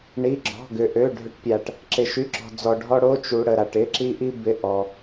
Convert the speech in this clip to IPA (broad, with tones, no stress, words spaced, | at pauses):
ɳi˧˥˧ɡ͡ǁɔ̤˧˥˧ɡʏ˧ ʔø˧˥˧ ɖʱʏ˥ʈpʲa˧ʈ | ǁɪ˧ʃy˧˥˧ǁɔ̤˧ d͡zɔ˧ɖʱɔ˥ ɽo˧˥˧t͡ʃu˧ ɽə˧ɾa˧ʈɪ˧˥˧ ǁi˥ʔi˥ bɪ˧˥˧ ʔɔ˧